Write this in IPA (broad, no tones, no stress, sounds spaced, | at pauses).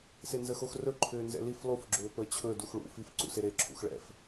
s e n z ə x o x r ɵ ǃʰ ʏː n z ɛ̰ l i f lˠ u f ɡ͡ǁ ʏː p əː t͡ɕʰ ɵ d u x ɭ ṵ f i f ǀ ṵ s e ɾ e ǁʰ ṵ x ɭ ɛ̰ f